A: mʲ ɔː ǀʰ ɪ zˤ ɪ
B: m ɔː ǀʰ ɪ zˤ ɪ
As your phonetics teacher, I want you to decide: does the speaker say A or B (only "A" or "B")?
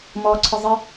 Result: B